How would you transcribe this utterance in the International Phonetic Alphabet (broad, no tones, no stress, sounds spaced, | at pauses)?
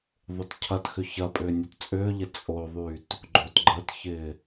ðˤ ʊ t cʰ ɐ t x ʏ ç ɐ pʼ ʏː nʲ ɐ t t͡sʼ ʏː ʎ ɪ t͡sʼ o ðˤ yː t | ɡ͡ǃ o t ɡ͡ǃ ə t ç ɪː